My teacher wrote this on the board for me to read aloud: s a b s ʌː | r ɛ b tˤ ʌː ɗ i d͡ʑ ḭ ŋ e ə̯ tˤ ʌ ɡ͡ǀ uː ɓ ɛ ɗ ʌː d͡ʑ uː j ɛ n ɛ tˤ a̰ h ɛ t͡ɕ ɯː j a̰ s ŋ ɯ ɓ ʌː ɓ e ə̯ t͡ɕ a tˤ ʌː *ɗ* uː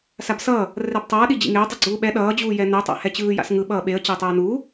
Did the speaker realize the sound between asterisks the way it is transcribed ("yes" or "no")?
no